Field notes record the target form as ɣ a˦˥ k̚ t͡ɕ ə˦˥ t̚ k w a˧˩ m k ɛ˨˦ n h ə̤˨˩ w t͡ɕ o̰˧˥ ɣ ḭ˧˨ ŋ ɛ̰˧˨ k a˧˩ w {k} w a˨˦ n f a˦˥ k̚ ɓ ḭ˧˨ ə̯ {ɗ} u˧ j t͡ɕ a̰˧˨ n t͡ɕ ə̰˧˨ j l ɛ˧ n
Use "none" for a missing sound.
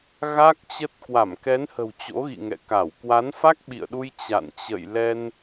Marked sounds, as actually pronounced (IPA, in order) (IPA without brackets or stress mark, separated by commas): k, ɗ